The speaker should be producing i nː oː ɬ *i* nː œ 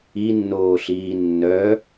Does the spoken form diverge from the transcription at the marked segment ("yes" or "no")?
yes